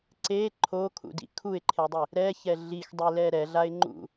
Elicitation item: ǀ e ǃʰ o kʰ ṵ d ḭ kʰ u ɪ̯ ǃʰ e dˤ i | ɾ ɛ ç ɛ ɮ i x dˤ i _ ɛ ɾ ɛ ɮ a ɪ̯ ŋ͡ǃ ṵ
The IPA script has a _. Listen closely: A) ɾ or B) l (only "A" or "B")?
B